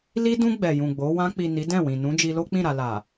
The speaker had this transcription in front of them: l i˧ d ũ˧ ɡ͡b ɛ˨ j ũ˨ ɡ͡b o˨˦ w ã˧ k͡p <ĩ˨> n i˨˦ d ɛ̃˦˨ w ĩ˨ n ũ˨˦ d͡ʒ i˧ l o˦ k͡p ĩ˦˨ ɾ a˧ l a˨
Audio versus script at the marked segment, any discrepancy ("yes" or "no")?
yes